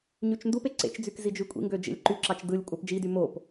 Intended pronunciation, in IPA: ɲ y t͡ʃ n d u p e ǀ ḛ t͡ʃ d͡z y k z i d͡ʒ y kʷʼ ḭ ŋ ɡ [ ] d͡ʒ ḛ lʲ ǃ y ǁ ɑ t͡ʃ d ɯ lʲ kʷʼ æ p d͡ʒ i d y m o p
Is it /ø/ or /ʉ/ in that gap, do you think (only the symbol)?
ø